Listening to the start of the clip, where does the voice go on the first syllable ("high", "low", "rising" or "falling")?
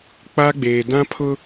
high